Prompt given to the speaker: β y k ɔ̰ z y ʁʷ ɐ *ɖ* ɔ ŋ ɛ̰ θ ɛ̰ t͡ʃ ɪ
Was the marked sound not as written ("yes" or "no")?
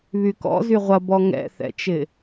yes